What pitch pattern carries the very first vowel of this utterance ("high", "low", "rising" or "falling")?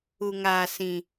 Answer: low